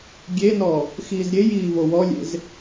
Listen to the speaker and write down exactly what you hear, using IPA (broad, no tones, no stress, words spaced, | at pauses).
ɡʲenɔ | xiːzɾʲej iːvowɔlʲḛz